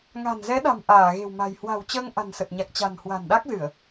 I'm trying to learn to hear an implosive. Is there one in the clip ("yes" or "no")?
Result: yes